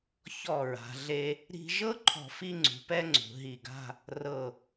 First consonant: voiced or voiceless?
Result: voiceless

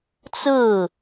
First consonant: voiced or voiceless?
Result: voiceless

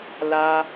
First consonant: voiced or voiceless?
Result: voiced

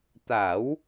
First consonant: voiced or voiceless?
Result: voiceless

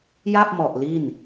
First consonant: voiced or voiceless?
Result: voiced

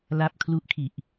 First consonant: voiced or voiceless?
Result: voiced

